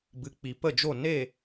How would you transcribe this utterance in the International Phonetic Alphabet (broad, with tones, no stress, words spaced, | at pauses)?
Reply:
bɨ˨k͡pi˨ pə˦˨d͡ʒo˦˨ ne˦˨